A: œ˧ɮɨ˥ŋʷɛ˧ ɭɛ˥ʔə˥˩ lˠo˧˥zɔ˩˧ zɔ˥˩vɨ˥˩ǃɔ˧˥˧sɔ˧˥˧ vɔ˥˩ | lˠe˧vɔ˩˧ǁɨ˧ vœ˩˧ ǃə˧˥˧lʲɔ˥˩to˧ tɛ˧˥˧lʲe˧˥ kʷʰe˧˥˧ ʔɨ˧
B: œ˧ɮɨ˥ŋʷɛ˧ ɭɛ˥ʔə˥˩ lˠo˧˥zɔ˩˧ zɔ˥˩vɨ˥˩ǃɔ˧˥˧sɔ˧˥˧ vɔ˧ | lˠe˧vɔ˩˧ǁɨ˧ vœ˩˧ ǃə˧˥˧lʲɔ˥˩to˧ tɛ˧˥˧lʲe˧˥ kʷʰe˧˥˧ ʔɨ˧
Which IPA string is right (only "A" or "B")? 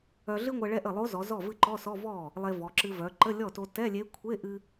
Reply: A